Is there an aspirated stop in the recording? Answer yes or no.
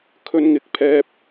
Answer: yes